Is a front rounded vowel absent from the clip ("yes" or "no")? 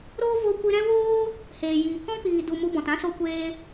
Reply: yes